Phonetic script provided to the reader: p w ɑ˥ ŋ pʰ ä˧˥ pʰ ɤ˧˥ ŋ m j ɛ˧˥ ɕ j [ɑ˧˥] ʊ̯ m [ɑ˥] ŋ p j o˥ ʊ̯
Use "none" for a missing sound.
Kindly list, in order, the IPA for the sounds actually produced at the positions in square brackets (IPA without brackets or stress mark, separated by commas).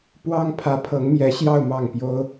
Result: ɑ˥˧, ɑ˥˩